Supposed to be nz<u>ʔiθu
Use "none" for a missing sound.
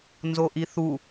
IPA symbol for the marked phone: o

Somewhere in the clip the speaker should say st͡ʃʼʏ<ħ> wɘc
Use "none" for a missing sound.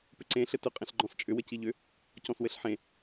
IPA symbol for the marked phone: none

